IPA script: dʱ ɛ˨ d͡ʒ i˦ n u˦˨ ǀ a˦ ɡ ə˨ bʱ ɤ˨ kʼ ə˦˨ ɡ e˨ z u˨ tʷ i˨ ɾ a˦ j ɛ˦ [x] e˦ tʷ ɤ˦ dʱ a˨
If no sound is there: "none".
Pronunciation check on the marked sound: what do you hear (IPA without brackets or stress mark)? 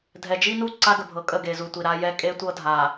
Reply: kʼ